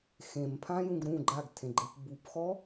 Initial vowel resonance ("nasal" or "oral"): nasal